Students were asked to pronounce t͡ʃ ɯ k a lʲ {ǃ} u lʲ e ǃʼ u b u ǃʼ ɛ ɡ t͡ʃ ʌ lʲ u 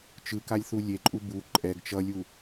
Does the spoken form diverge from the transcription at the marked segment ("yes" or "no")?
yes